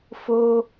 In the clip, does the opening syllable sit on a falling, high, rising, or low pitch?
high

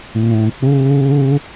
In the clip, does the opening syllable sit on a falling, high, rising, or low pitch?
low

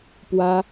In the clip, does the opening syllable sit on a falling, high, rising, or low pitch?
high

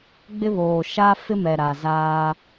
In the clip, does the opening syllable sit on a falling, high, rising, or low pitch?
high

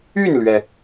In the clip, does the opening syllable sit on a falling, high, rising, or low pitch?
falling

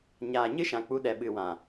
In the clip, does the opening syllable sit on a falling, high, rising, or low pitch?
low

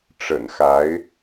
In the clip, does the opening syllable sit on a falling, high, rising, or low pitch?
low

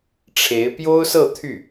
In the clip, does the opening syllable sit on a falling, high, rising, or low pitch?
rising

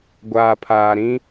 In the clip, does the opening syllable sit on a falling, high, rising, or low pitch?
low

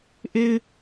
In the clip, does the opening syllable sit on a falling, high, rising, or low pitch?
low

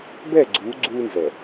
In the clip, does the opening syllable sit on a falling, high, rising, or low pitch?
falling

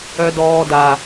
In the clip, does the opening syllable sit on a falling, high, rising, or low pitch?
low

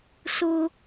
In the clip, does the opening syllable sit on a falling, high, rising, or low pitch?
high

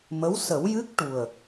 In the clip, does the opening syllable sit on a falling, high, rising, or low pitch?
rising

